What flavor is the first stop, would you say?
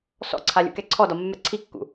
click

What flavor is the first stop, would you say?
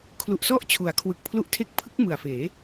aspirated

